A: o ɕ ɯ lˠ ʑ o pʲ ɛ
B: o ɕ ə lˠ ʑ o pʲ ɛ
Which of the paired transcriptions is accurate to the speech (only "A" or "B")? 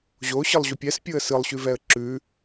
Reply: A